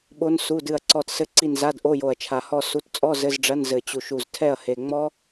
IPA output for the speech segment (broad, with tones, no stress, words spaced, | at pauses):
ɓo˦˥nsu˧˥˧dɨ˦˨ɐ̯ǀɔ˦˨t sɘ˦˥ǀi˦˨nza˧˥˧dʔo˧˥˧ jo˨˩ɐ̯t͡ʃʰa˨˩hɔ˦˨ su˧˥˧t t͡sʼɔ˧˥˧ zɘ˧˥˧zɖ͡ʐɐ˧˥˧n zɘ˨˩t͡ɕu˨˩ʃ u˨˩ztʰɛ˦˨ɐ̯he˨˩ ŋ͡mɔ˦˥